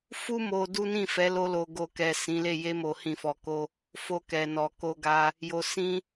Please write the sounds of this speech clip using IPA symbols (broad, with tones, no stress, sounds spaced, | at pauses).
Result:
f u˦ m o˧ d u˦ n ĩ˦˨ f ɛ˨˦ l o˧ l o˨ ɡ o˨ k ɛ˨ s ĩ˨˦ l e˦˨ j e˧ m o˨ h ĩ˨ f ɔ˨ k o˧ | f o˧ k ɛ˨ n ɔ˨ k o˧ ɡ a˧ | j o˨ s ĩ˧